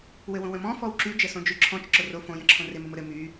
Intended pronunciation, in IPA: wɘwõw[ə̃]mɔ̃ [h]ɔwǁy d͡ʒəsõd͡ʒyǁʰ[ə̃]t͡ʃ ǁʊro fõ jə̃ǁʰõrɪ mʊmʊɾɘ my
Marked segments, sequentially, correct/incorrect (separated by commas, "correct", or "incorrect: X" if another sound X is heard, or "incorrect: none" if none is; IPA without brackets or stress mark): correct, incorrect: f, incorrect: ɔ̃